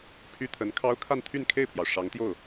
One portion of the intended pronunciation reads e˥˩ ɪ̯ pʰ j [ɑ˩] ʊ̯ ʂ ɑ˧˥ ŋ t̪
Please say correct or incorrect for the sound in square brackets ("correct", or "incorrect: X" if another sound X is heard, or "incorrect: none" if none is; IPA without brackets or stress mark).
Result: correct